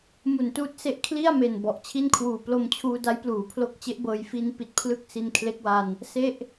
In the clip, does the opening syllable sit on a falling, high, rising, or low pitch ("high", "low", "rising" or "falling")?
low